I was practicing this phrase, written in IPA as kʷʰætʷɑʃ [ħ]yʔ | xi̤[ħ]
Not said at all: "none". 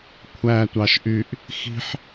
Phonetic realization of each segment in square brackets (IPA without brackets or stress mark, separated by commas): ʔ, ħ